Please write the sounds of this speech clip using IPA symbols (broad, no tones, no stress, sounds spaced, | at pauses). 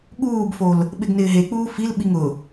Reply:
ɠ uː b f o l | ɓ ɪ ɡ n ɪː ɦ e k͡p uː f i l ɓ i ŋ ʊ